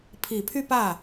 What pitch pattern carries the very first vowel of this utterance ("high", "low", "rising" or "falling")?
low